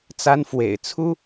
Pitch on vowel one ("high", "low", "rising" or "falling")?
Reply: high